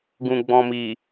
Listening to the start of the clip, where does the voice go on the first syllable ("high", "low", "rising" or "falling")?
low